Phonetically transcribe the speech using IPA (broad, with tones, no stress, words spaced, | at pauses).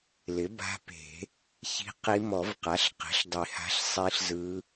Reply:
lɪ˩˥ba̤˧˥pe̤˨˩˦ | çi̤˧˥qi˧˥ mɔ˨˩˦vqa˩˥ɬ qe̤˩˥ɬdˤi˨˩˦ha̤˧˥ɬ sˤi˧˥ɬzɯ˧˥